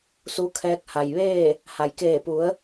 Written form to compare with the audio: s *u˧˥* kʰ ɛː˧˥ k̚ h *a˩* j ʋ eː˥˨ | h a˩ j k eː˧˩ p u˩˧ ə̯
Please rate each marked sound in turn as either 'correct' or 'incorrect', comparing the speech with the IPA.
correct, correct

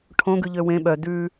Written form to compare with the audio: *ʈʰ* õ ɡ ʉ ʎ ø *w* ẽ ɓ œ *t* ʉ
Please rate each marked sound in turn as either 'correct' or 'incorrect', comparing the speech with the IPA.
correct, correct, incorrect: d

